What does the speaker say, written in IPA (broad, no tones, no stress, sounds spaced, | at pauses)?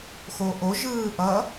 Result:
x oː ʔ o ʒ ɯː ʔ ʌ